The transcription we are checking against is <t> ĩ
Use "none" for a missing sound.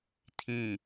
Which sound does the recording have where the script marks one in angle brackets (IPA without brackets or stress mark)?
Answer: tʰ